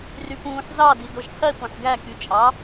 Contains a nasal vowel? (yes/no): yes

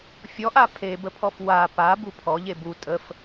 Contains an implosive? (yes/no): no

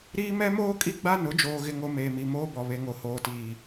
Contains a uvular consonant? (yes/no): no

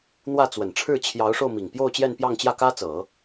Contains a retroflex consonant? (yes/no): yes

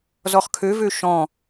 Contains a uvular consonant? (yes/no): yes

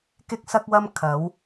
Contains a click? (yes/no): no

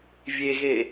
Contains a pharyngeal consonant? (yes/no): no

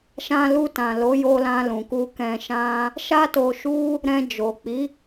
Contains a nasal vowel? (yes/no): yes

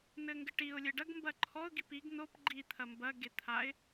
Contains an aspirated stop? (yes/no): yes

